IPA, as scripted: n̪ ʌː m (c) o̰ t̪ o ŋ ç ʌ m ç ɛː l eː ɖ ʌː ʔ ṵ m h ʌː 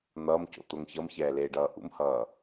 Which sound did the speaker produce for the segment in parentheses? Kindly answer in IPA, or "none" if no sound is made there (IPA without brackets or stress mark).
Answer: c